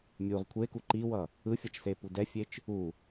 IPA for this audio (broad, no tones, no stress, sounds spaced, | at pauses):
mʲ u ʁ kʷʰ e k u ǃ i w ʌ | ɯ fʲ ʌ t͡ʃ s e p u d ɛ fʲ e t͡ʃ | u